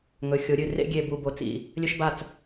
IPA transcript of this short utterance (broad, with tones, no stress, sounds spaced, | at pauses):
ŋ ɵ˩˧ xʲ o˩˧ ɾʲ ɨ˧˩ r ḛ˥˧ ɡʲ e˧˩ b u˧˩ b o˧˩ t͡s ḭ˧˩ | lʲ ɵ˧ ʃ b a˧˩ t͡s